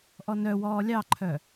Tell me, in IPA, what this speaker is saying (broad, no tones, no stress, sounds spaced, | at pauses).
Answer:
ʔ ɔ n œ w ɔː lʲ ɑ ǃʰ œ